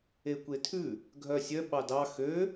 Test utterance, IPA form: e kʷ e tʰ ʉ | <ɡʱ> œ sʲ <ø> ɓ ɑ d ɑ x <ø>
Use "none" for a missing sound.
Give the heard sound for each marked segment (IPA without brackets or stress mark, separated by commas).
ɡʱ, œ, ø